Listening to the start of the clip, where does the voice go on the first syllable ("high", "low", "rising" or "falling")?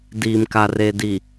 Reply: low